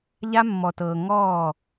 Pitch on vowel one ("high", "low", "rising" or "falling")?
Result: high